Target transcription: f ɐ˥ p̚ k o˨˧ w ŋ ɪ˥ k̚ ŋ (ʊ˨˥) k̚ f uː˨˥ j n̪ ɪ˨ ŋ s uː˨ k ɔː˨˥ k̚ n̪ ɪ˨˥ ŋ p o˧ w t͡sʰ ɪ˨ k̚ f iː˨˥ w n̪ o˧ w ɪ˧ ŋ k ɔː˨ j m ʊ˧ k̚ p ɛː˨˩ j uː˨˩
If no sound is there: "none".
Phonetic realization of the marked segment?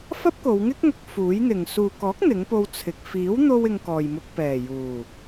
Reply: ʊ˨˥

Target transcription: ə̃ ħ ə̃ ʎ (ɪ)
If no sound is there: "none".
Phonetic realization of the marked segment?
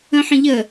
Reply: ə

